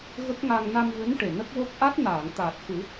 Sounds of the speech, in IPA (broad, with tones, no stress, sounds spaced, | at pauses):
ɣ ə˦˥ k̚ ŋ a˧ ŋ n a˧ m v ɨ˧˥ n ʈ e˨˩ n ə˦˥ k̚ w o˦˥ k̚ ʔ a˦˥ t̚ n aː˨˩˨ ŋ t̪ aː˨˩ t̚ x ɨ˨˩˦